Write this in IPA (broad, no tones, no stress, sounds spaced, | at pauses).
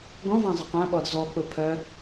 ɡ ɔ̃ v ã zˤ ə q ã ɓ ɔ d z ɔ k͡p ʊ pʰ œ